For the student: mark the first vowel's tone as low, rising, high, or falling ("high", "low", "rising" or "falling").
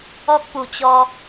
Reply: high